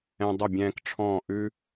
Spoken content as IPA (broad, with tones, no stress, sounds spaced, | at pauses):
ɛ̃˧ dˤ ʊ˦˨ bʲ ɛ̃ː˧ k ʈ͡ʂʰ ɔ̃ː˦˨ ʔ ʉ˦